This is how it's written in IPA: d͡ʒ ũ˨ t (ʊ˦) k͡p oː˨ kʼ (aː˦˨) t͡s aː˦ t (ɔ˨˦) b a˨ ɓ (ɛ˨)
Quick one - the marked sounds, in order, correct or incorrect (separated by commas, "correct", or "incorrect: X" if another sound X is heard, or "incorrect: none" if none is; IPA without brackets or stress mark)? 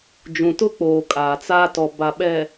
correct, incorrect: aː˨, incorrect: ɔ˨, correct